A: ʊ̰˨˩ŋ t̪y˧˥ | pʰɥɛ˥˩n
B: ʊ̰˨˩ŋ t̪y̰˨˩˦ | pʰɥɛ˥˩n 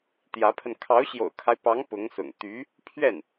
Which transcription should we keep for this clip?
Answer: A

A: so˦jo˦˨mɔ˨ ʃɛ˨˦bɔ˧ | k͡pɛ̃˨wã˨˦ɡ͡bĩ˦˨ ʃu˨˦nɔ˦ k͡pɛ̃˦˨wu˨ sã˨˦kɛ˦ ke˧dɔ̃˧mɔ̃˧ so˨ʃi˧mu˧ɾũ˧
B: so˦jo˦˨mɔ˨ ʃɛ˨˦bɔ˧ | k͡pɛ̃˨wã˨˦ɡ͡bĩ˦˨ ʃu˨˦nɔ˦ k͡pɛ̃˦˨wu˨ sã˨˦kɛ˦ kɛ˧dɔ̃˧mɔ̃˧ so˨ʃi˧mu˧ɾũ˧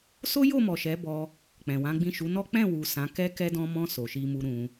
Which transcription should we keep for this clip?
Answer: B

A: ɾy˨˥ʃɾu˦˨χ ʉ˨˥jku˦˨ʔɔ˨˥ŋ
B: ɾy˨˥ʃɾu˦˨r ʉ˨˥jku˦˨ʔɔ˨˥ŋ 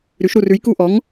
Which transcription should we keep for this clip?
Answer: B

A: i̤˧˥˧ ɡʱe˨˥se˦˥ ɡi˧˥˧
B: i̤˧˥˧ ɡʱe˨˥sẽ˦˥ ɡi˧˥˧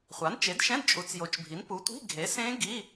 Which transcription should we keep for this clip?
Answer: B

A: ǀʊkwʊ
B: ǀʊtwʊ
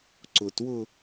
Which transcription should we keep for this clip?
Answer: B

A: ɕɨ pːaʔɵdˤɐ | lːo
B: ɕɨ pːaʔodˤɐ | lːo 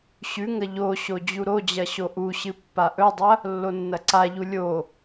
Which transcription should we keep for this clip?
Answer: A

